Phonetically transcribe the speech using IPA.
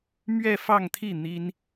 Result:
m ɥ ɛ˥˧ f ɑ˥˧ ŋ t̪ʰ i˥˩ n̪ i˥ n

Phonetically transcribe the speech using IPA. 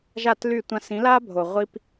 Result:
ʒ a˦˨ t l y˦˨ tʷ ã˧ s ĩ˨˦ l a˦ bʱ o˨ ʁʷ i˦ p

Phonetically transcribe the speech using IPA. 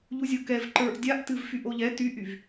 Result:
ʎ u zʲ o k ɛ v ǃ ə˞ ʔ dʲ a ʔ t ɨ v f y ʔ o ʎ ɛ t y ʔ y v

